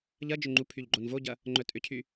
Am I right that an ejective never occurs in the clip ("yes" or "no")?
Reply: no